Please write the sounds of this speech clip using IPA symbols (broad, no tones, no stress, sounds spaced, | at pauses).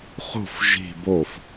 χ ṳ f ʒ i̤ b o f